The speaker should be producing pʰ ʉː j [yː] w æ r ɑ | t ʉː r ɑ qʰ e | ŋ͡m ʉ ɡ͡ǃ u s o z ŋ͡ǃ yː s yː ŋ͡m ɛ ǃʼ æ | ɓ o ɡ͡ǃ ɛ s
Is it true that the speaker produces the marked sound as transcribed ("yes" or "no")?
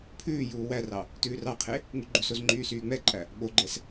no